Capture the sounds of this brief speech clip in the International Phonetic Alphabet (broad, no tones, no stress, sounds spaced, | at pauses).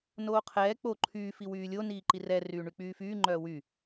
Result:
n oː qʰ ɛː k͡p o ǃʰ yː f i w yː lʲ o n iː ǃ i r ɛ r yː ɳ y k͡p yː f yː ŋ͡ǃ œː w y